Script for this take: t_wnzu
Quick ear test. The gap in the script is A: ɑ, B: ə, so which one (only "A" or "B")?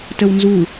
B